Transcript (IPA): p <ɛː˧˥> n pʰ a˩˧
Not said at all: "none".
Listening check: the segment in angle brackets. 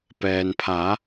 ɛː˩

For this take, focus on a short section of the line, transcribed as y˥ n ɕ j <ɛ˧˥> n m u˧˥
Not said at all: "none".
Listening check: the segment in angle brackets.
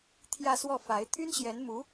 ɛ˧˥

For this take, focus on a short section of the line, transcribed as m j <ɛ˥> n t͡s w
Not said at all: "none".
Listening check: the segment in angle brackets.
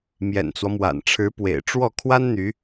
ɛ̰˨˩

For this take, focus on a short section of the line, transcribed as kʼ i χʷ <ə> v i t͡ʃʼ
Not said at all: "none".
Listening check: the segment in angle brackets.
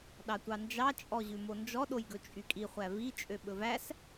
æ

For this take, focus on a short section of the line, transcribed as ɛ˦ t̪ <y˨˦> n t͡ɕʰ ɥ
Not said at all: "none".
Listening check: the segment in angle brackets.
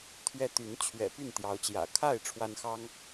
y˨˦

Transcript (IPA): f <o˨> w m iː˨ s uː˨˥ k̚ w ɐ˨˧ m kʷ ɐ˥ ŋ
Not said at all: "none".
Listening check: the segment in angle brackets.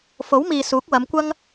o˨˥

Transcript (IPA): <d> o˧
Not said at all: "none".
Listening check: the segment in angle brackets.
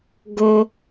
ɡ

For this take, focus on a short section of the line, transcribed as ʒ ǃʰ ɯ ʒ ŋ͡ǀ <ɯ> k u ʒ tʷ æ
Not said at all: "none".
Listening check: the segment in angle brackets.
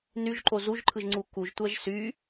u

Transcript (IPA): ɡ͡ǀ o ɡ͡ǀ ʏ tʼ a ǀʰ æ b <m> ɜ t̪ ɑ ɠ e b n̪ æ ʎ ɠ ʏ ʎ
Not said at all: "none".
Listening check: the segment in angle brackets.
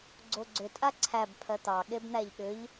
pʰ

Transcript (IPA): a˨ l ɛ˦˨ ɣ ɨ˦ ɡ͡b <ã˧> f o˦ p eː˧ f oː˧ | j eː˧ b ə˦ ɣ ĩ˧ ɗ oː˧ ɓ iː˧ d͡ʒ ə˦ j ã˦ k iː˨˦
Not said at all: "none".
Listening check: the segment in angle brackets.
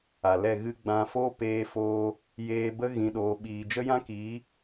ã˧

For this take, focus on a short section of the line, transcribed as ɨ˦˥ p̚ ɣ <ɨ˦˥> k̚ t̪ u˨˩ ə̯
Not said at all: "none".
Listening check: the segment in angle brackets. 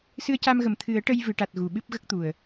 ə˦˥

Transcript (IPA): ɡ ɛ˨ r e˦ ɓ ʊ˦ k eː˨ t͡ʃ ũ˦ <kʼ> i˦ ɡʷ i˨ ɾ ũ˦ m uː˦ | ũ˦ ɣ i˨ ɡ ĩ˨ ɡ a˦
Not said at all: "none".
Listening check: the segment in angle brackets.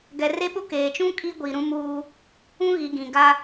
kʼ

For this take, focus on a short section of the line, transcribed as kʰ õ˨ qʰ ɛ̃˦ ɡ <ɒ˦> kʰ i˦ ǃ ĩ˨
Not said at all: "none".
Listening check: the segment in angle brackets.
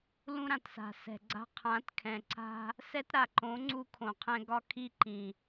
ɒ˦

